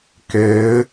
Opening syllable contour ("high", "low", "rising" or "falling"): rising